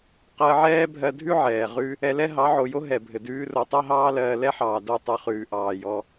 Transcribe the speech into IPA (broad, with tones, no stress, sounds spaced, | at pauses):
q ɜ˧ ʕ ɛː˦ bʱ ɜ˧ dʱ ʉ˦ ʕ ɛː˨ ʁ ʉ˦ | ɛ˧ l ɛ˦ ɦ ɑ˨˦ ʕ o˨ j o˦ ɦ ɛ˨ bʱ ɘ˨ d ʉː˦ r o˧ tˤ ɜ˦ ɦ ɑː˦ l ɜː˧ l ɛ˦ ħ ɑː˨ d o˦˨ tˤ ʉ˧ χ ʉː˨ ʔ ɑː˨ j ɔ˧